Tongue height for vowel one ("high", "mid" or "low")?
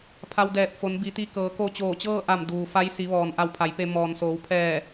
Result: low